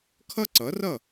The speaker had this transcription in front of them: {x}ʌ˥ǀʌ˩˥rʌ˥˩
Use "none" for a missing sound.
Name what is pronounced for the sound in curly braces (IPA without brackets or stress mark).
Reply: kʰ